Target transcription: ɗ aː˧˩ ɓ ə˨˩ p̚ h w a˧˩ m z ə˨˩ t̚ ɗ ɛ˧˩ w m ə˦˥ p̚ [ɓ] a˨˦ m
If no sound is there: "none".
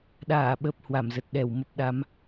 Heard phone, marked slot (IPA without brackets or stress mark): ɗ